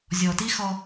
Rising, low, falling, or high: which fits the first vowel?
low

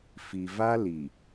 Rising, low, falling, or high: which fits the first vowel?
low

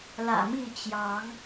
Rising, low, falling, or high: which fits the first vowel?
low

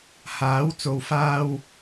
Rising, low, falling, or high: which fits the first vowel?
rising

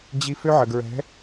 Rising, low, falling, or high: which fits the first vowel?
high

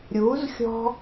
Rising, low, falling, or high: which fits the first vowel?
rising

